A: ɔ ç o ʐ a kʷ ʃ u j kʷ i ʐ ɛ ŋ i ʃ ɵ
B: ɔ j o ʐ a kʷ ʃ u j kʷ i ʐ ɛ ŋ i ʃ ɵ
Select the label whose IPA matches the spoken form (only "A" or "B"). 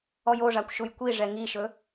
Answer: B